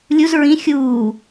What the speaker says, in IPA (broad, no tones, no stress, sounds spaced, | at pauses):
lʲ u z ɹ ĩ xʲ uː